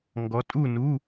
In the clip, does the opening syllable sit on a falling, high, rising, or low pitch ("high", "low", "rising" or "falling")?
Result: rising